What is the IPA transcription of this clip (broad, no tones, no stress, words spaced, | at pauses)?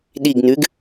ɗiɡnʉɡ